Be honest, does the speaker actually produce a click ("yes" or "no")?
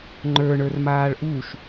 yes